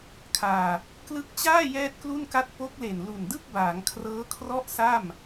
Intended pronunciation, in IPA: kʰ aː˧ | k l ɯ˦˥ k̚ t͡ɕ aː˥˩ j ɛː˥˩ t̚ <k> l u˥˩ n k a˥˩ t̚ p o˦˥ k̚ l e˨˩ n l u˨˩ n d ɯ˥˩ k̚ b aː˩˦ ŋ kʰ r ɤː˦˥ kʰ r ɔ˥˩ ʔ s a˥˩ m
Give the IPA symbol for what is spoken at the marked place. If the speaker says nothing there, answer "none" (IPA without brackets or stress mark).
k